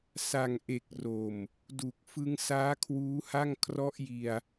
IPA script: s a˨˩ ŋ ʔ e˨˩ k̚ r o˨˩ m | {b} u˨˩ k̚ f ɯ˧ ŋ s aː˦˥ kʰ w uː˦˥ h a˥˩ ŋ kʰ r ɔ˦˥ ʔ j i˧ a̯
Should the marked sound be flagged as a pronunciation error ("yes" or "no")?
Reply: yes